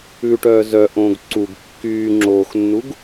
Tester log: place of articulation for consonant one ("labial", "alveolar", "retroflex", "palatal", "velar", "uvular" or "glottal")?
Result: retroflex